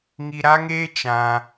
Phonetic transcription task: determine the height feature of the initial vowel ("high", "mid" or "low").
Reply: high